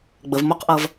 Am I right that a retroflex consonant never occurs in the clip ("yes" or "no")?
yes